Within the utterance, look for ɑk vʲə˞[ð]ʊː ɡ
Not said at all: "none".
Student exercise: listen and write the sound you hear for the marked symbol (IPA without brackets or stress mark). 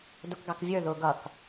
ð